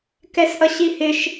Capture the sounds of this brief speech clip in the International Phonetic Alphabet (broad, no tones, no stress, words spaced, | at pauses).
kɛsʔʌɕihɪʃ